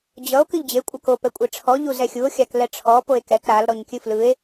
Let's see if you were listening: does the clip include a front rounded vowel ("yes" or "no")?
no